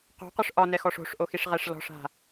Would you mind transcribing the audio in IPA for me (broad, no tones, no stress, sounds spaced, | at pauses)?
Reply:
q o̤ q ʏ ʂ ʔ ɒ n ɛ x ɔ ʂ o̤ ʂ ʔ o x i ʂ ʁ ɛ ʂ l ɔ̤ ʂ a̤